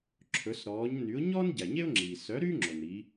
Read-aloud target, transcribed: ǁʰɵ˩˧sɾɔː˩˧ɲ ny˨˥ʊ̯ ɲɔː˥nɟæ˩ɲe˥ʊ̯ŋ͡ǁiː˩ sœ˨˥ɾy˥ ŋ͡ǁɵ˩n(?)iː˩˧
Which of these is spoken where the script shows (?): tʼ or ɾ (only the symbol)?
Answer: ɾ